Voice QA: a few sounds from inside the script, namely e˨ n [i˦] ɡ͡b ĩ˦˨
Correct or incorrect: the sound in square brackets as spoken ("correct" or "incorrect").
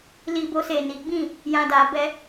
incorrect